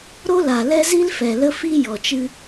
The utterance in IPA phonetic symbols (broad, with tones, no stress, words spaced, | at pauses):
ɾo˦la˨lɛ˦zi˦l fɛ˨lə˦ fi˦ jɔ˨t͡ʃɨ˦